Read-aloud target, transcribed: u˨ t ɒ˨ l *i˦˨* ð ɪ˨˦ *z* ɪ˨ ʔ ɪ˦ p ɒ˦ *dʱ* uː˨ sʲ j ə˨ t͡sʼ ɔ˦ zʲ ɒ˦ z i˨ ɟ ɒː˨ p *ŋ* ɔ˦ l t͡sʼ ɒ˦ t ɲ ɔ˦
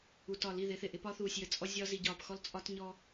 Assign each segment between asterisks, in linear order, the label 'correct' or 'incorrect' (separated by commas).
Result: correct, incorrect, incorrect, incorrect